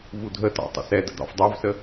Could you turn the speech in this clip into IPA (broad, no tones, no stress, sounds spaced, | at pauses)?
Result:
v u dʱ ə t ɑ̰ tˤ ə̰ s ɛ d ə̰ d̪ ɑ̰ f dˤ ɑ v s ə